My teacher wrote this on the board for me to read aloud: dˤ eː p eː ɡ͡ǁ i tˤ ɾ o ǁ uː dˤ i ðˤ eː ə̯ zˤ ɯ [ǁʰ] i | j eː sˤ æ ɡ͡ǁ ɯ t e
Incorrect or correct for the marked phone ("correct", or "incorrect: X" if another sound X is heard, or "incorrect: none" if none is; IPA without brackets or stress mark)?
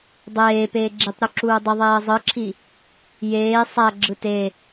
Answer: correct